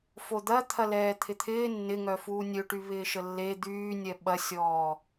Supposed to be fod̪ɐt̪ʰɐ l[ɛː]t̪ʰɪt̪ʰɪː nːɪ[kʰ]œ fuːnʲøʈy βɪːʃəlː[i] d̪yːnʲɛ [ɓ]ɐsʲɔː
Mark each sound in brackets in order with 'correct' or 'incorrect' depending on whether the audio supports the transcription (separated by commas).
correct, incorrect, incorrect, correct